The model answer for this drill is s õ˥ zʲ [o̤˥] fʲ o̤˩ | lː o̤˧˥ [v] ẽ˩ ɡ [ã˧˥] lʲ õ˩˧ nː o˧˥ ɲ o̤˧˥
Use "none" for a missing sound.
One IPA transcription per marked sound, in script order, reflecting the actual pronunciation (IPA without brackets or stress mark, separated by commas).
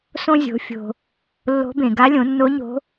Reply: o̤˩˧, b, a˧˥